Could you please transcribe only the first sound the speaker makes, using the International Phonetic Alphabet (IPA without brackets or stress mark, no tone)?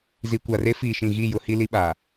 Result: z